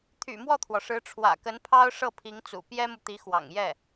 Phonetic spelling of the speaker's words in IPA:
t̪ʰ y̰˨˩ m w ɔ˥˩ t̪ʰ w ɔ˩ ʂ ɻ̩˧˥ ʈ͡ʂʰ w ä̰˨˩ k ə˧˥ n pʰ ɑ˥ ʊ̯ ʂ ɤ˥˩ pʰ i˧˥ ŋ t͡s ṵ˨˩ p j ɛ˥ m u˨ t̪ i˧˥ x w ɑ̰˨˩ ŋ j ɛ˥˩

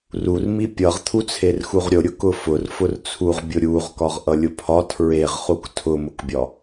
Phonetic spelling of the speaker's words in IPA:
r u r m i pʲ ʌ ʁ t̪ʰ u t͡sʰ e r x u ʁ ɾʲ ʊ ɾʲ ʊ k ʊ f ʊ r f ʊ r t͡sʰ u ʁ bʲ ʊ ɾʲ u ʁ k ɒ ʁ ʔ ʌ lʲ ʊ pʰ ɒ tʰ ɹ e ʁ χ u k tʰ ʊ m ʊ k bʲ ɒ

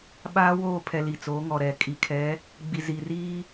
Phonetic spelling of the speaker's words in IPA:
ɓ aː˦ w oː˦˨ pʰ ɛ˨ l i˨ t͡s oː˨˦ ŋ ɔ˨ ɾ ɛ˨ kʼ i˨ kʰ ɛ˨˦ | ɡ͡b i˨ z i˨ r iː˦

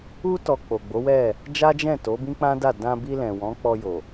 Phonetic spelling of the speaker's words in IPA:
u˦ t ɔ˧ k͡p o˨ ɡ͡b o˨˦ w ɛ˦˨ | d͡ʒ a˦ d͡ʒ ɛ̃˦˨ t o˨˦ b ĩ˦ k͡p ã˦ d a˦˨ d ã˧ b i˧ l ɛ̃˨ w ɔ̃˨˦ k͡p ɔ˧ j o˨

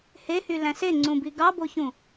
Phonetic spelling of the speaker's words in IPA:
h e h y l æ̃ s e ŋ͡ǀ ũ b i ɡ ɑ b o ç ũ

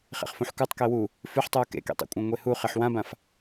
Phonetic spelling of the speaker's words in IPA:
χ ḛ χ f ũ ħ k u tˤ k e w u | f ʉ ħ tˤ uː k ḛ k ḭ tˤ ḛ kʷʼ ã ŋʷ e h u χ e ħ w ã b ã f

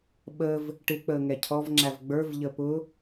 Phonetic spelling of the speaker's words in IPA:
ɓ ə v | ʈ ɪ k͡p əː ŋ ɛ cʰ ɔ v ŋ͡ǁ æ v ɡ͡b ə˞ v ʎ ə p ʊ

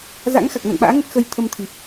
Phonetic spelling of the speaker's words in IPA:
z a̰˧˥ ŋ x a˨˩ k̚ n a̰˧˨ n ɓ a̰ː˧˥ ŋ ə˦˥ t̚ x ə˧ j t̪ʰ ə˧ m t̪ʰ i˨˩ p̚

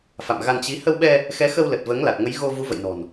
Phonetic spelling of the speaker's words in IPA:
f a̰˧˨ m ɣ a˧ n t͡ɕ i˨˦ h ə˧ w ɓ ɛ˧ | x ɛ˨˦ x ə˧ w l ə˨˩ t̚ v əː˨˦ ŋ l a˨˩ t̚ ŋ ə˨˦ j ɣ o˧ v u˨˦ v ə̰˧˨ j n ɔ̤˨˩ n

